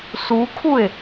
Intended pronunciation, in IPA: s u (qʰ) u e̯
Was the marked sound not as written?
yes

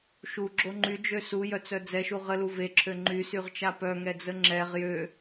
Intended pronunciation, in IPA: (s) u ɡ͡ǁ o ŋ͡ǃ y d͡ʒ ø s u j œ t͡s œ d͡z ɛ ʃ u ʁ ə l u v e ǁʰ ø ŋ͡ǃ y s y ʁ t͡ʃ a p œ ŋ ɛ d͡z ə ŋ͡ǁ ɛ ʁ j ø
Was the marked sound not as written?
yes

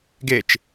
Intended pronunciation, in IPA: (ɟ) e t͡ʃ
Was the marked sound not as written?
yes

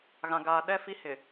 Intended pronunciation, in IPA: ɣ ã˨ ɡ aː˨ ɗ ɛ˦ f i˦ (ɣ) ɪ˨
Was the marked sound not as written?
yes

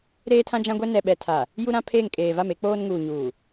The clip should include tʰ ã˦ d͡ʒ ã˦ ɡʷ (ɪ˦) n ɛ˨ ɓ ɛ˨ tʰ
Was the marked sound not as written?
yes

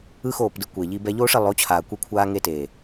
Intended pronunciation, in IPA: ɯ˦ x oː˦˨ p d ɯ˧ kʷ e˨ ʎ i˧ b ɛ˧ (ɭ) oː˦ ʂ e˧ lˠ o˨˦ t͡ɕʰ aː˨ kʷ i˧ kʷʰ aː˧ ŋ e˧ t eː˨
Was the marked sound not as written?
yes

